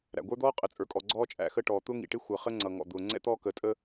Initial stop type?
plain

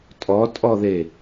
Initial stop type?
ejective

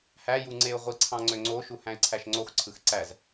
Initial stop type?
click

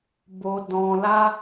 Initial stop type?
plain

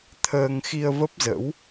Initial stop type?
aspirated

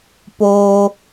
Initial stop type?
plain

